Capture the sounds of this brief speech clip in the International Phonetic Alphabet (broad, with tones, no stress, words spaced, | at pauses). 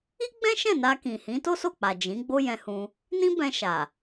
i˦ɡ͡bɛ̃˦ʃɛ̃˦˨ na˧kĩ˨hĩ˨˦ to˦so˦˨k͡pa˨ d͡ʒĩ˨˦ ɡ͡bo˦jɛ̃˧hũ˧ | nĩ˦bɛ̃˧ʃa˨